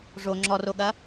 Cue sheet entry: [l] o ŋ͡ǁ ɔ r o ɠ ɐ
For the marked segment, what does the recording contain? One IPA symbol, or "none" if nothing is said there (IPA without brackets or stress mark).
ʐ